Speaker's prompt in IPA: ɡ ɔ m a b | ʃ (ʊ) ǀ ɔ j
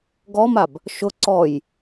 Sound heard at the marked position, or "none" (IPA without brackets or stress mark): ʊ